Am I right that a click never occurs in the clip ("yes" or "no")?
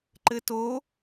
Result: no